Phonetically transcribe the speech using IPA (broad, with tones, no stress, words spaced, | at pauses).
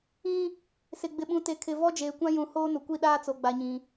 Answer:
ĩ˦ | sɪ˨ ɡ͡bɪ˨ɓũ˨te˨kʰɪ˨ vɔ˦d͡ʒeː˨kʷã˦ jũ˨hoː˦nʊ˨kʷi˦˨ ɗaː˦t͡so˨ɡ͡ba˨ɲĩ˨